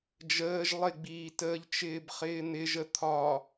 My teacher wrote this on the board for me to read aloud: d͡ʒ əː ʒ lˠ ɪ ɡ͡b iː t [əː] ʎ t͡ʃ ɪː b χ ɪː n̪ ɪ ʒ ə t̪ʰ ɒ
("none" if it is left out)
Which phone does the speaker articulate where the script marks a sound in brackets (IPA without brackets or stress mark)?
əː